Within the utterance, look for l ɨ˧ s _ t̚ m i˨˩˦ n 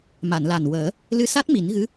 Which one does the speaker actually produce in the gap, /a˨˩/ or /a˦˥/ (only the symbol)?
a˦˥